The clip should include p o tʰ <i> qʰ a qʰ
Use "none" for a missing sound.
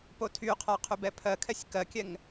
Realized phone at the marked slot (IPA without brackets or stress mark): y